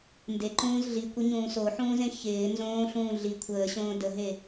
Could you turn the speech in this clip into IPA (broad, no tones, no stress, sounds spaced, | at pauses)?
n d e ǃ ũː z ɮ i kʷ ɪ ɲ ũː s o ħ ũː z ẽ ç ɪː n z õː ɬ ũː ɮ i kʷʰ əː ɕ õː d ə ɦ e